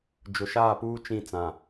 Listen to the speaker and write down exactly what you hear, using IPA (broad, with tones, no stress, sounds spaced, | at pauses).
d͡ʒ ʊ˨ ʃ aː˦˨ p uː˦ t͡ʃ ĩ˦˨ t͡s ã˨